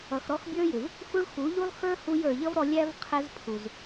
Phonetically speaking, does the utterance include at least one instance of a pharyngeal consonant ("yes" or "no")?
no